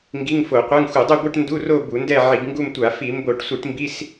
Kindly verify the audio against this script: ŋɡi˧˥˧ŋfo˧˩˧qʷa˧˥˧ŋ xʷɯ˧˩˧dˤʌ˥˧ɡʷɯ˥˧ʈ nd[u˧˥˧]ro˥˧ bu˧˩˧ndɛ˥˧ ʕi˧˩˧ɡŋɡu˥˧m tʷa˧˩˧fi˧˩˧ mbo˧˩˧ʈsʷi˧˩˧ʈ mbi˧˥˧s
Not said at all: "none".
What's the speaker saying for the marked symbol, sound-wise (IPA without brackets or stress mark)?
u˧˥˧